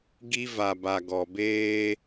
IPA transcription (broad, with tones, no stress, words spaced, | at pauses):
ɡi˦va˨ba˨ ɡɔ˨beː˦